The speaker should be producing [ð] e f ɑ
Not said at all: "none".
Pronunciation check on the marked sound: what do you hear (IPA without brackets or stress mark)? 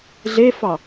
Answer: ɮ